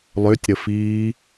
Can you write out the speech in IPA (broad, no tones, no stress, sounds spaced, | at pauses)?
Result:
lˠ ø tʲ ɾ ə f iː